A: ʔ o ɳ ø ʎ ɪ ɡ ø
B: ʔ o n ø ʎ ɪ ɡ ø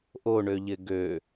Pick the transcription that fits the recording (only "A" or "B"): A